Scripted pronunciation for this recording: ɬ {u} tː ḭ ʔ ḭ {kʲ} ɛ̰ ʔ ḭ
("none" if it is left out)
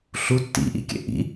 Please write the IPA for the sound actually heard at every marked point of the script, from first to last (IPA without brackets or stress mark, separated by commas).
u, kʲ